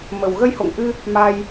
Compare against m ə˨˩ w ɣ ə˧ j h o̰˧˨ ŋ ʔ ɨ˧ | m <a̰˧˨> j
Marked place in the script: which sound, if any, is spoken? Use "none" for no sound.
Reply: a˧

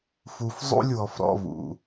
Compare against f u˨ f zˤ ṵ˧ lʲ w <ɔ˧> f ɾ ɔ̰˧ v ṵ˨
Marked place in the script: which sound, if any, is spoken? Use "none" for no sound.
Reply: ɔ˧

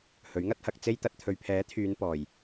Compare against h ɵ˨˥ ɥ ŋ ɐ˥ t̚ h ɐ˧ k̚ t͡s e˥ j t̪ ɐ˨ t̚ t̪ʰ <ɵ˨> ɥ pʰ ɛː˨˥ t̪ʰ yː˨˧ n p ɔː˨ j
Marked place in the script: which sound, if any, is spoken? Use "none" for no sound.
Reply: ɵ˨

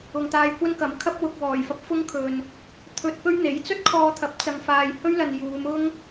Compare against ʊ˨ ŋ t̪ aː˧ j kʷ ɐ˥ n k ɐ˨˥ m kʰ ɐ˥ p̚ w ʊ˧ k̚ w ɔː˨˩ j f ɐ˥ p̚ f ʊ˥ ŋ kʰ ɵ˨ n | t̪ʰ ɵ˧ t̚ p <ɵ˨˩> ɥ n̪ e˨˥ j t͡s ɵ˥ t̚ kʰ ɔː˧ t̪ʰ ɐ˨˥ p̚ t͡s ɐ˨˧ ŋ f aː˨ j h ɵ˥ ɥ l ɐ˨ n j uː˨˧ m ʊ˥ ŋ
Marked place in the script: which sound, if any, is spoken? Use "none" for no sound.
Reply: ɵ˥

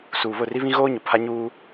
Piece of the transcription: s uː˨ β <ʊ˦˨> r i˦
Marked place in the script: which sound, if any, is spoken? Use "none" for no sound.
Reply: ʊ˦˨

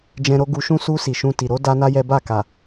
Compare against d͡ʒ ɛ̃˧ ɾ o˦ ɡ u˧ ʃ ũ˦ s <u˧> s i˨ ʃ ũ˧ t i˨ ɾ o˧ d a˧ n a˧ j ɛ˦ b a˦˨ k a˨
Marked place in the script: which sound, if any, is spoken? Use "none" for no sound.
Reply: u˧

